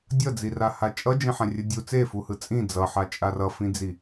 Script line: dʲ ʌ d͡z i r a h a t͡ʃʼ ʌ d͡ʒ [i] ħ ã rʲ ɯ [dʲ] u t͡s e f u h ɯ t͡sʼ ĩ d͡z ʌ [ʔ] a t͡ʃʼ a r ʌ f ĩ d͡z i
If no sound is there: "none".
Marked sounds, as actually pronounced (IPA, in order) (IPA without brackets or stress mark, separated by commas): ĩ, dʲ, ħ